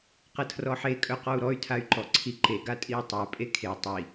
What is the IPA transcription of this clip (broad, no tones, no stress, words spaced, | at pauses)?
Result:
qɐtʰrɔħe kʼœqɔu̯ɾɔy̯ tʰay̯ǃɔǀʰiǃe ɡatʼiu̯tˤa pʼekʰe tˤi